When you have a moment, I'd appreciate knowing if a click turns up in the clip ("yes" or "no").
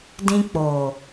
no